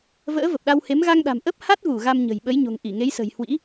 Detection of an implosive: present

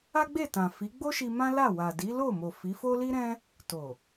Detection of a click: absent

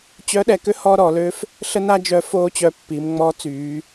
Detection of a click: absent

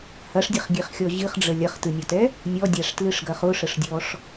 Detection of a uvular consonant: present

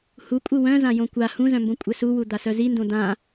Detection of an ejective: present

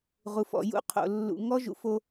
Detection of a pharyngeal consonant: absent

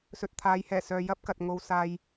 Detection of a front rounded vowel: present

